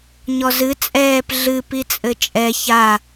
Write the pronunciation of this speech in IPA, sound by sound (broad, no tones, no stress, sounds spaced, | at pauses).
ɲ ɔ z ɨ t͡sʼ ɛː p ɮ ɨ p i t͡sʼ ɘ t͡ʃʼ ɛ ç a